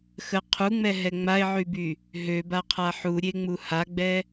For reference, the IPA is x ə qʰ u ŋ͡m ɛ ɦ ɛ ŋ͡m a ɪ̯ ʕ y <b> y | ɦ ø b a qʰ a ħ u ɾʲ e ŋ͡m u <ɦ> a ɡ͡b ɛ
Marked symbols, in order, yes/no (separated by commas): yes, no